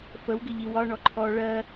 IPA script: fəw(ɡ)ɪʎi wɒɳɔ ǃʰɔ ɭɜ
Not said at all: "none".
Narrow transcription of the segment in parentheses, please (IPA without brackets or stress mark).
ɡ